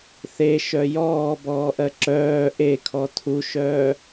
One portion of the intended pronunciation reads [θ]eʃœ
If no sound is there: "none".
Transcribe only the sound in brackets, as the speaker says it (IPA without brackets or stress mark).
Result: θ